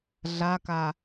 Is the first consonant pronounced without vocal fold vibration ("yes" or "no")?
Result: no